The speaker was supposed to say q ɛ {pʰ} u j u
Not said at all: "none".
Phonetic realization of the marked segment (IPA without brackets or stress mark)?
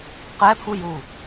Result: pʰ